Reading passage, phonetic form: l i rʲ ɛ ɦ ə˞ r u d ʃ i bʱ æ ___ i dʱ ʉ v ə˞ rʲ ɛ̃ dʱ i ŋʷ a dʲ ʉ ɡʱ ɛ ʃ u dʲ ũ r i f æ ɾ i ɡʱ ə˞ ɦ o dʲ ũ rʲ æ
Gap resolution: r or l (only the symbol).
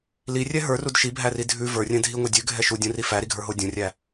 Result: r